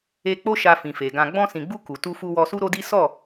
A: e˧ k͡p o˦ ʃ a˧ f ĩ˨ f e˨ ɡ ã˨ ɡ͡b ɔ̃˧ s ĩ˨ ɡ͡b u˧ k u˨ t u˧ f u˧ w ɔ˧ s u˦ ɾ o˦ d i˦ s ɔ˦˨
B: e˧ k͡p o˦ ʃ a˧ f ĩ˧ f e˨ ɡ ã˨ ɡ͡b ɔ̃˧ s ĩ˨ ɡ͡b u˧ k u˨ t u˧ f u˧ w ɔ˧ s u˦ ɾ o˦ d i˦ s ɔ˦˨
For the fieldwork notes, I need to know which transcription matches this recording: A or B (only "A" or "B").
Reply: A